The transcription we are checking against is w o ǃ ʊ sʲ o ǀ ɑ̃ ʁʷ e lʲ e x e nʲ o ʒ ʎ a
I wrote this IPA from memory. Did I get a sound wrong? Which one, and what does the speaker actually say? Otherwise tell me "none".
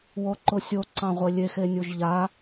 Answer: none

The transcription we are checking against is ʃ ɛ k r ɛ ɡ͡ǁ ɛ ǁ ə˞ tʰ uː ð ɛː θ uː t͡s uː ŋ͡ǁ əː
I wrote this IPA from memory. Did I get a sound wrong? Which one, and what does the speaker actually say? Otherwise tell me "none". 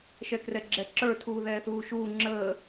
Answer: t͡s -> ʃ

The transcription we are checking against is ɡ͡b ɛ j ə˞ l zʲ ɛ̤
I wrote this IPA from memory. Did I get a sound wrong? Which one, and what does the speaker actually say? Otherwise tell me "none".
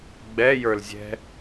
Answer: none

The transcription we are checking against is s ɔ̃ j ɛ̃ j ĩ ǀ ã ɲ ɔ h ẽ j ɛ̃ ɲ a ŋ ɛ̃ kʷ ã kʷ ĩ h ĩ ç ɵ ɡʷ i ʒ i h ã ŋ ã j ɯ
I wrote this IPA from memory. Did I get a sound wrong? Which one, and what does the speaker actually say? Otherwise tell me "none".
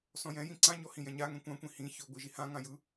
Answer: ẽ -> ĩ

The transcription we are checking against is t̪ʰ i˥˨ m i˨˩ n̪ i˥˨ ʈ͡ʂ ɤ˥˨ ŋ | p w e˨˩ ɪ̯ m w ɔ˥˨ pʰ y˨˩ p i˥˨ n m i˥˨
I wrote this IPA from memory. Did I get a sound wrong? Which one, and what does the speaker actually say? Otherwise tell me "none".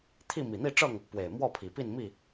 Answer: y˨˩ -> i˨˩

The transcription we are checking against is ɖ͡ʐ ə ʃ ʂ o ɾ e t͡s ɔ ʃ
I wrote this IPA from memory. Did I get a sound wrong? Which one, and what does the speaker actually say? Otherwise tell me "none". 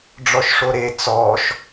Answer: ə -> ɔ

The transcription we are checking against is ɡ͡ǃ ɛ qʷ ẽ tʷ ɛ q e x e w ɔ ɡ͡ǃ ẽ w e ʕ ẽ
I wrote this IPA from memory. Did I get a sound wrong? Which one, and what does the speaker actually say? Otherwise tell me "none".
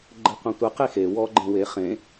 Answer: ʕ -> χ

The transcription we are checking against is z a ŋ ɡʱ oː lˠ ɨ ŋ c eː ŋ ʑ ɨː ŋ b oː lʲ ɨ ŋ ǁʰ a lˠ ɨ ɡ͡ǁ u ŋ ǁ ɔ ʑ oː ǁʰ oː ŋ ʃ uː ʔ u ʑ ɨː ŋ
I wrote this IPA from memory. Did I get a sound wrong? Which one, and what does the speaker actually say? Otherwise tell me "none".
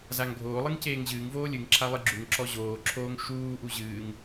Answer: b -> v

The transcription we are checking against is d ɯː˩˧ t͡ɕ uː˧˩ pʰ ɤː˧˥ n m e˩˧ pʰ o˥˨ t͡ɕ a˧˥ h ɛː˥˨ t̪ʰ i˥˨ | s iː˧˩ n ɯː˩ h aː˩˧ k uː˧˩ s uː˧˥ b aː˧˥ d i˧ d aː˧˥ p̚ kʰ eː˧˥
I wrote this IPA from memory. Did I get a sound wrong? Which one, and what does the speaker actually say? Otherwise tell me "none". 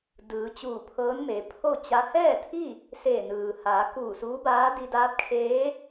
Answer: iː˧˩ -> eː˧˩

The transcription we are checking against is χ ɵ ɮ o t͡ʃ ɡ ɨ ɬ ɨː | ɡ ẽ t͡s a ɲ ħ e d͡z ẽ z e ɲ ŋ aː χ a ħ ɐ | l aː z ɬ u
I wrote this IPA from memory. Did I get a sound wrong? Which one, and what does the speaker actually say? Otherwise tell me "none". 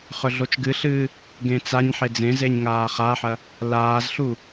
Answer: none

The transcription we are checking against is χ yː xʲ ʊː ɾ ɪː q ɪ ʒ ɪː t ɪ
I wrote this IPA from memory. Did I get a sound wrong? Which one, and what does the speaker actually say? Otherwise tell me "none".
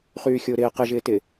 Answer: none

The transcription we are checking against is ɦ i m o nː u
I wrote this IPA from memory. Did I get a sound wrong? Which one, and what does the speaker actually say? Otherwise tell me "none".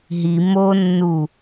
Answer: none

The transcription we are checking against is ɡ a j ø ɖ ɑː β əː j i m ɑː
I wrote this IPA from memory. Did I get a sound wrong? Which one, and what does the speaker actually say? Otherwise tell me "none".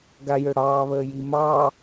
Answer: ɖ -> ɽ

